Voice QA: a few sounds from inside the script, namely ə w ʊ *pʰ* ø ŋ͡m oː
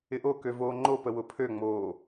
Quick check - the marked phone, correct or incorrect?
correct